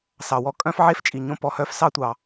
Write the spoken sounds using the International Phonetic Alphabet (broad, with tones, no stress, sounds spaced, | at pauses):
s ɑ˩ w ɔ˥ kʼ œ̃˥ f ʕ e˥ f t͡ʃʼ i˩ ɲ õ˥ p ɔ˩ h œ˥ f s ɑ˥ tʷ ɑ˩